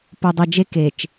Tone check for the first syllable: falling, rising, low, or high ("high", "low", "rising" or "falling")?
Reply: low